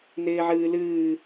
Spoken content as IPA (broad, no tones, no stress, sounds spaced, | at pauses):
n ɪː ʕ ɨː l ɨː